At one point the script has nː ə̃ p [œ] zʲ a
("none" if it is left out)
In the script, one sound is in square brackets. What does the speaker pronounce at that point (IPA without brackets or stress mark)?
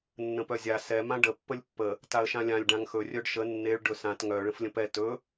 œ